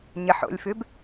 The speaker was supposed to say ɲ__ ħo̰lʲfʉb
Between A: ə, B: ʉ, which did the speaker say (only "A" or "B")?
A